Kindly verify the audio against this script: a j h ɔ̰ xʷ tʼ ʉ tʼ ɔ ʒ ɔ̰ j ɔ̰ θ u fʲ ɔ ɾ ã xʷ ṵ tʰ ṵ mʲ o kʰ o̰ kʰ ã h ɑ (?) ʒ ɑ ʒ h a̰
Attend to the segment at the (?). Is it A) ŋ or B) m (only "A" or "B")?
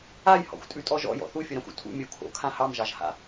B